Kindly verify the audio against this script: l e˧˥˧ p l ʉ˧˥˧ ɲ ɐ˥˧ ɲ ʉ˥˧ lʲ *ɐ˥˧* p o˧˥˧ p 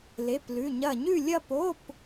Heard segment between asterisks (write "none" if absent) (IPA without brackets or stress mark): ɐ˥˧